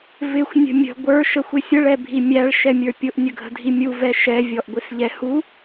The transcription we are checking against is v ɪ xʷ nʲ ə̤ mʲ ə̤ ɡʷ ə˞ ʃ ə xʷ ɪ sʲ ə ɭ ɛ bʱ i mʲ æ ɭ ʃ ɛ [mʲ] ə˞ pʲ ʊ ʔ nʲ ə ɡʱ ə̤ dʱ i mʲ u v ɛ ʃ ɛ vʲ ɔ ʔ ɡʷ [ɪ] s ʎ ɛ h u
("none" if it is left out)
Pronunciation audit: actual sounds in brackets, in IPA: mʲ, ɪ

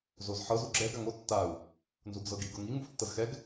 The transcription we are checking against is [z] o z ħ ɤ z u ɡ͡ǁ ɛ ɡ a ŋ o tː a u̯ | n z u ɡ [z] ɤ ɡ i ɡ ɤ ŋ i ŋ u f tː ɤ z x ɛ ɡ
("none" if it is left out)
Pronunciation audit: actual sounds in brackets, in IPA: z, z

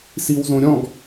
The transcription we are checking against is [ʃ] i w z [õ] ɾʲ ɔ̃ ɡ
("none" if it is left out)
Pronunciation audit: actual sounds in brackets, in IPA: s, õ

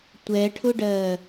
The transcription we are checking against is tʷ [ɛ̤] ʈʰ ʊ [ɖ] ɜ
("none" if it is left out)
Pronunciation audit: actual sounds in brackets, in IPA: ɛ, ɖ

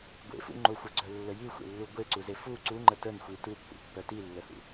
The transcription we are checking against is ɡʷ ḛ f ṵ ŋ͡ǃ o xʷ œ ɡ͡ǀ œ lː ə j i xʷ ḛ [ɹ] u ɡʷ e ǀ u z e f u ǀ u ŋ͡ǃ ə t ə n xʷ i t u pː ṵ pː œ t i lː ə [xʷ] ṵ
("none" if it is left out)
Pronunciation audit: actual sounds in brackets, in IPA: lː, h

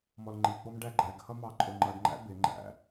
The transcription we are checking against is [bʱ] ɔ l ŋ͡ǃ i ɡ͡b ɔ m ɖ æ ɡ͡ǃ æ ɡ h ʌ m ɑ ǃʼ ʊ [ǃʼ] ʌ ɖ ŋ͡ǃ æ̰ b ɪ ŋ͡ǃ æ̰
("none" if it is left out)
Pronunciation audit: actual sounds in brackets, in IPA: m, ŋ͡ǃ

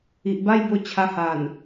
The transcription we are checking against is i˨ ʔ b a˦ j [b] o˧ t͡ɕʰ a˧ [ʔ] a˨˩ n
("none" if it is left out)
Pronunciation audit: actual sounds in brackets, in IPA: b, h

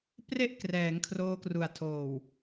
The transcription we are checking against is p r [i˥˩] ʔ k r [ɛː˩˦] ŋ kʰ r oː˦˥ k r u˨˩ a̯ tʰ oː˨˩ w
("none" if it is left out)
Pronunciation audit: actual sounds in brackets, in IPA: e˥˩, ɛː˩˦

